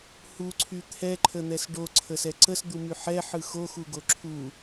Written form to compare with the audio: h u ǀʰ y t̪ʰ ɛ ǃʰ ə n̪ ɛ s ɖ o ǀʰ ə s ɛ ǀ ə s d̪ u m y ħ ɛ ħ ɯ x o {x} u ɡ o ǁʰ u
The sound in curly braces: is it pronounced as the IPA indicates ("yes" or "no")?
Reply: yes